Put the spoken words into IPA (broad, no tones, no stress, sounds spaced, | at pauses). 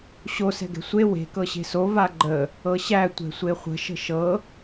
ɕ o s ɛ̤ ɡ ɛ̤ sʷ e w e̤ k ɤ ɕ e̤ s o v a ɡ͡ǃ ə | ɤ ɕ æ tʷ ɛ̤ sʷ e χʷ ə̤ ʃ ə̤ ʃ ɤ